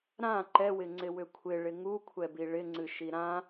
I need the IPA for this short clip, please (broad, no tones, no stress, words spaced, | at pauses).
ɾã ǃɛwɪŋ͡ǀɪwʏ kʷʰɪɭɪ ŋukʷʰɛbi ɭɪŋ͡ǀɨʃi ɾã